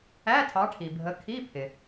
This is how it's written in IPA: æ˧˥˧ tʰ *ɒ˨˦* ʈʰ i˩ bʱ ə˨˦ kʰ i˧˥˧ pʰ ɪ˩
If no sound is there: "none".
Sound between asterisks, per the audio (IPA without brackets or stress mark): ɑ˨˦